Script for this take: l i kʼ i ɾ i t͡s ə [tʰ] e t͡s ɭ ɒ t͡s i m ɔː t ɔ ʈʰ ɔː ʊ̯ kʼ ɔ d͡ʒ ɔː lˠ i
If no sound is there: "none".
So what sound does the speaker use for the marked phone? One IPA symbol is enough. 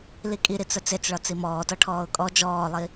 t͡s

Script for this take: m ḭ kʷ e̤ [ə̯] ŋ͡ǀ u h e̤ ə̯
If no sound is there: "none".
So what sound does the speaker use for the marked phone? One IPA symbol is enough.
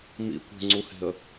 none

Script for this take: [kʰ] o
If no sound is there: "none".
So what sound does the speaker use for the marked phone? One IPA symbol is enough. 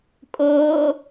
kʼ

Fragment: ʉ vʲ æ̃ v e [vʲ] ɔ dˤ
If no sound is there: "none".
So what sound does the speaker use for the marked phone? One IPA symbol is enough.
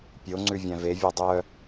vʲ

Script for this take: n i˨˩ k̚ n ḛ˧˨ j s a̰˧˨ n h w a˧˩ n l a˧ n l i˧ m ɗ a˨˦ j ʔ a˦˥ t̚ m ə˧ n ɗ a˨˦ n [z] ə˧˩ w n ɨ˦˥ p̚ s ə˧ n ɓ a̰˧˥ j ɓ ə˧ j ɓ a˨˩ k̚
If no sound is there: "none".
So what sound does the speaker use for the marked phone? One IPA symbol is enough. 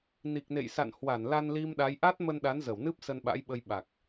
z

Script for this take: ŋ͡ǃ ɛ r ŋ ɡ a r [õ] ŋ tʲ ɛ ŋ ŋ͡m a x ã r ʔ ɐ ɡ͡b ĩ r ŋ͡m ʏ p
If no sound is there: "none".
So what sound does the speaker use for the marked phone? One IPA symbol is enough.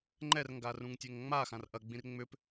ũ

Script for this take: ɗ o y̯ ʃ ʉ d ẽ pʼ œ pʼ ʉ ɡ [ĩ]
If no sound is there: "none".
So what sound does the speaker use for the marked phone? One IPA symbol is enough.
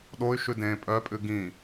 ĩ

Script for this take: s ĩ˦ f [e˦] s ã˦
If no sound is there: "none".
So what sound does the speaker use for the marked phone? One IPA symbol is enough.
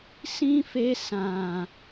e˦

